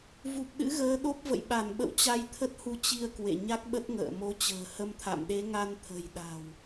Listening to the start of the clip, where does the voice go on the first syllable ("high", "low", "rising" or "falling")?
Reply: low